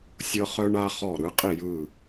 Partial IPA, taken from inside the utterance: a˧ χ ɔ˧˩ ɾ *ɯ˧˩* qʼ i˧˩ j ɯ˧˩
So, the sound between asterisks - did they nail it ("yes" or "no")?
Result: no